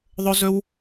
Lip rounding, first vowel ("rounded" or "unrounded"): rounded